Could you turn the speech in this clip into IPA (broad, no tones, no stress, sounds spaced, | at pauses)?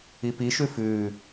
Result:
i p i ʃ ʉ f ʉː